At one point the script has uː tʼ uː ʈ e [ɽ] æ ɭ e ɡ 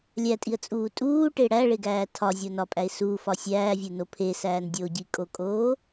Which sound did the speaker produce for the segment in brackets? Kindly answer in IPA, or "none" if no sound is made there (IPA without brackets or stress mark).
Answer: ɽ